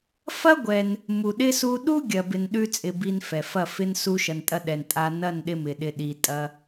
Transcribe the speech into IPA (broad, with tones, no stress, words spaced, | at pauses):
fɐ˦ ɡʷɛ˧n | mu˨ɗɪ˧ su˧ ɗu˦ɡʲɐ˨bɪ˨n ɗʉ˦t͡sʼɪ˧ bi˧nfɛ˨fɐ˦˨fɪ˦n su˧ʃɐ˨ntʼɐ˧ɗɛ˨n tʼa˧ nɐ˦˨nɗɪ˧mɪ˨ɗɪ˧ ɗi˧tʼɐ˦